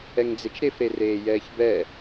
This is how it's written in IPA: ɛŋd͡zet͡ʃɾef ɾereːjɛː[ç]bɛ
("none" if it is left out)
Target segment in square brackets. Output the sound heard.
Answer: ç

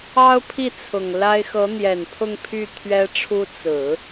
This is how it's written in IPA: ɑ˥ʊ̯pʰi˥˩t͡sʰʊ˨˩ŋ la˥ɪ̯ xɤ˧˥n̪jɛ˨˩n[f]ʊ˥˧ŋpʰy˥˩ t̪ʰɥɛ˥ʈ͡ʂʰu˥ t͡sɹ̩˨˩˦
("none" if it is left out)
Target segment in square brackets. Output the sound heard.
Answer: pʰ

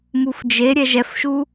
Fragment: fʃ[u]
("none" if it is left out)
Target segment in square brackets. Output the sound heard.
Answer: u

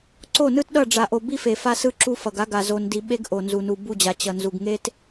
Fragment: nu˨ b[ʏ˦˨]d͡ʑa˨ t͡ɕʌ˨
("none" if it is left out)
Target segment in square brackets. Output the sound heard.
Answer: u˦˨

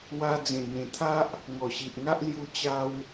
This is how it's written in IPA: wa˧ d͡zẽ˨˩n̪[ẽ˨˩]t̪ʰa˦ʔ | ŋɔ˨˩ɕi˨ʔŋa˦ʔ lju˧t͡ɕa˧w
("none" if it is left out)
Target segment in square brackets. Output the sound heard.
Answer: ẽ˨˩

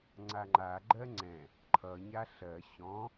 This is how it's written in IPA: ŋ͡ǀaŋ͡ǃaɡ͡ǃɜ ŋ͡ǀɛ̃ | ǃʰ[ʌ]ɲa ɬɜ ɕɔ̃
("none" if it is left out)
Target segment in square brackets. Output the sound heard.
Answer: ʌ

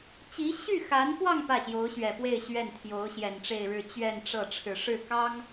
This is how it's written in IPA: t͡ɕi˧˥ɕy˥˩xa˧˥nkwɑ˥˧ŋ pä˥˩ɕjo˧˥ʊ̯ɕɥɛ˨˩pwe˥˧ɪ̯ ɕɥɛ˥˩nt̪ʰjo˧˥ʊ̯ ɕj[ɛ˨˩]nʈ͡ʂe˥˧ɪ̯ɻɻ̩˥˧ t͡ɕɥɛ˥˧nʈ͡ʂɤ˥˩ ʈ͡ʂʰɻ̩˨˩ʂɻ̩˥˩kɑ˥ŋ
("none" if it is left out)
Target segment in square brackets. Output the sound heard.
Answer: ɛ˨˩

